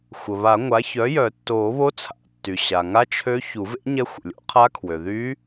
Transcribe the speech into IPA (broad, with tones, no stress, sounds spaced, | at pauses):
xʷ ə˩ β a˨˩˦ ŋʷ a˩˥ ç œ˩˥ j œ˨˩˦ tː oː˨˩˦ β o˧˥ t͡sʰ a̰˨˩˦ tː y˩ ɕ a˩ ŋ a˧˥ t͡ʃʰ ø˧˥ ç u˨˩˦ v ḛ˧˥ ɲ ɛ˧˥ xʷ ə̰˩ lʲ o̰˨˩˦ qʰ a˧˥ kʰ w ø˩ ð y˧˥